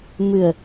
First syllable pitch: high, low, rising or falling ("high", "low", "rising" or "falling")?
low